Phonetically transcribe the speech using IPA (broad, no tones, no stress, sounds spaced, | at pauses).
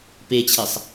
p e t͡ɕʰ e sˤ